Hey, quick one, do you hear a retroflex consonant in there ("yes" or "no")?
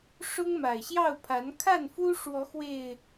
yes